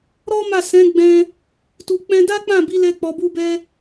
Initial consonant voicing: voiced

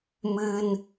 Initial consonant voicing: voiced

